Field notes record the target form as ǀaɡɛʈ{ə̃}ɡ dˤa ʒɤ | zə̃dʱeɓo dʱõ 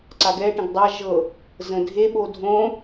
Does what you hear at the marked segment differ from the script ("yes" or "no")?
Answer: no